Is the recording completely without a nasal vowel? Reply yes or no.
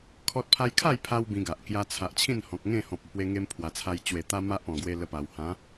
no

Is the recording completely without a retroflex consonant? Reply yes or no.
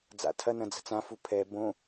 yes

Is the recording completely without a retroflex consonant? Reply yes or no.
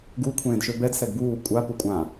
yes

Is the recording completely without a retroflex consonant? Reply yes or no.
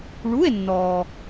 no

